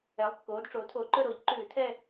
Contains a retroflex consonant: yes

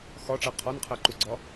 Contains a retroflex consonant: yes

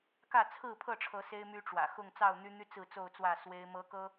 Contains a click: no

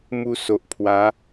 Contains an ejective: no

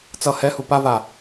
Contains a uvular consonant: no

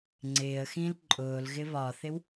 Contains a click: yes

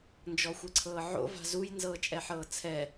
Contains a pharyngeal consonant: yes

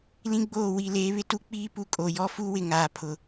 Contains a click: no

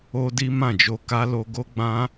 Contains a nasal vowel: yes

